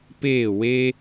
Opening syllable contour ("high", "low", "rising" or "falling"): falling